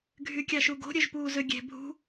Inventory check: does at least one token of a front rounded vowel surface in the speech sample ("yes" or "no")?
yes